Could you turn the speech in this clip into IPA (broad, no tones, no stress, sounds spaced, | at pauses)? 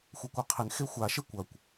xʷ ɐ kʷ œ qʰ ɪ n x e xʷ a ʃ e kʷ ɐ kʷ